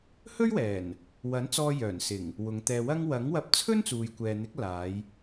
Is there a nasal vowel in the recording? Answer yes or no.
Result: no